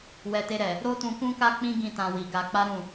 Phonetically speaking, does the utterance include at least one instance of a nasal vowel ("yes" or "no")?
yes